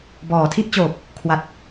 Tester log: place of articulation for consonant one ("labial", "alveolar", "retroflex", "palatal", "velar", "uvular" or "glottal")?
labial